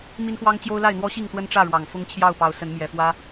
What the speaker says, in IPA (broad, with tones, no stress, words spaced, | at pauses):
mi˦nxwɑ˦ŋt͡ɕjo˦ʊ̯la˥˨ɪ̯ n̪wɔ˦ɕi˥˨ŋ t̪wə˦nʈ͡ʂä˥˨ɻwɑ˨˩ŋ fʊ˦ŋt͡ɕʰjɑ˥˨ʊ̯pɑ˨˦ʊ̯sə˨˦n mjɛ˨˩fwä˦